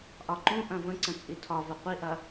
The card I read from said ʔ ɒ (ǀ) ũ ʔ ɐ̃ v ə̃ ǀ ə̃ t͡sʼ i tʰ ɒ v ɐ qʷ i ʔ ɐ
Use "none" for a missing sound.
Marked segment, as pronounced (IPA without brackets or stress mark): ǃ